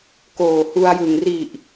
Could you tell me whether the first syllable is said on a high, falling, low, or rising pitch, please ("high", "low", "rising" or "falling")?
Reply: low